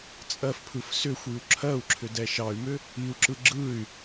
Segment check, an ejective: present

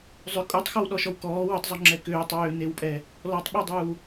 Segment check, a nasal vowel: absent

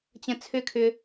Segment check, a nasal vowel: present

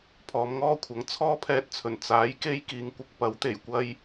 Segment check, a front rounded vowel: absent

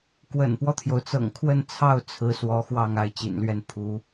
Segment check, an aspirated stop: present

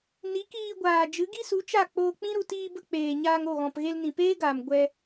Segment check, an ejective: absent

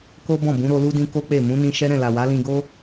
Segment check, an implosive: absent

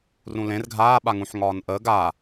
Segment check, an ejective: absent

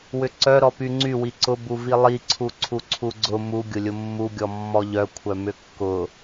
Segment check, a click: present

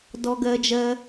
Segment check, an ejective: absent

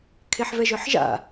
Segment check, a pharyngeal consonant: present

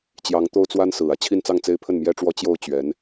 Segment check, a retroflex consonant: present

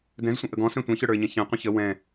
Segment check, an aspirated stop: absent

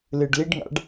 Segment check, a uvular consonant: absent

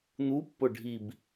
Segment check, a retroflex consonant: present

